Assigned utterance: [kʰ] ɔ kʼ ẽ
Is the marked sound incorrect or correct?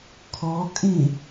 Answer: correct